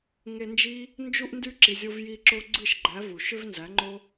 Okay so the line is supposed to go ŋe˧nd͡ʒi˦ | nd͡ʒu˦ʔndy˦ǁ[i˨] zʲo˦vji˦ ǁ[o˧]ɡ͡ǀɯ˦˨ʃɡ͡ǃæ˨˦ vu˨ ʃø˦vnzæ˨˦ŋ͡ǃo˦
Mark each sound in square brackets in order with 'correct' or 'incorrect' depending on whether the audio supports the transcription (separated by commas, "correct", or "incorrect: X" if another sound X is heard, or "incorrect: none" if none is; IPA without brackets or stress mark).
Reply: correct, correct